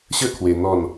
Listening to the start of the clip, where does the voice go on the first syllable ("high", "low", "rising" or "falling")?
falling